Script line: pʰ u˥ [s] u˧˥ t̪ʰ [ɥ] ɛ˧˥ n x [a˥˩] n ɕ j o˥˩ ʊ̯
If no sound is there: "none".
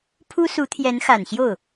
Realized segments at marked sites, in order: s, j, a˨˩

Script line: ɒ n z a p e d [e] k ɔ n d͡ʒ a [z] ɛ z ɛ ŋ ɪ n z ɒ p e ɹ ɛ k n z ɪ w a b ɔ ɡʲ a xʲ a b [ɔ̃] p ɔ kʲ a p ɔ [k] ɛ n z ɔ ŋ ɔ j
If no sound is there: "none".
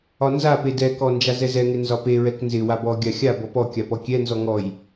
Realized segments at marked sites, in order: ɛ, z, ɔ, kʲ

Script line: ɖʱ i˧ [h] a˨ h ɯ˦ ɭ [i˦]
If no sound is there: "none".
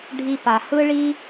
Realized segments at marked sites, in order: p, i˦

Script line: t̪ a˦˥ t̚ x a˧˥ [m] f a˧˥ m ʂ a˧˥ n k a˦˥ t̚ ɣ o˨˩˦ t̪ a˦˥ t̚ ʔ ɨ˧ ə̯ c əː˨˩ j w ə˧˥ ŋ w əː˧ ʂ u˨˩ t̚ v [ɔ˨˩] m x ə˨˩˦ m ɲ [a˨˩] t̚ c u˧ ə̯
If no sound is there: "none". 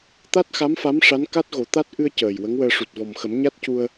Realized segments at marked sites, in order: m, ɔ˨˩, a˦˥

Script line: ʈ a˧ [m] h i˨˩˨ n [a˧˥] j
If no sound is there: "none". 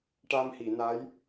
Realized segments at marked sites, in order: m, a˧˥

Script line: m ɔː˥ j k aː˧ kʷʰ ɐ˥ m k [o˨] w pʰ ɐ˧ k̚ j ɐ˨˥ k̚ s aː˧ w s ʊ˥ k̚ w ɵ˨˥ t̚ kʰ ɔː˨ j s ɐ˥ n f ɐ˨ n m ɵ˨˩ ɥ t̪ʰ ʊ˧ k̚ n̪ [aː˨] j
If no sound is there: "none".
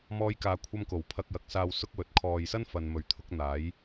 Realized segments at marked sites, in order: o˨˩, aː˨˥

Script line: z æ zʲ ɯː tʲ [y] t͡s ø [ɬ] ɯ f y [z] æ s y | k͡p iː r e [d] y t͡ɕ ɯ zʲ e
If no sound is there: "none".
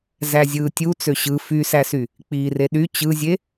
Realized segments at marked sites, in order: u, ɕ, s, ɗ

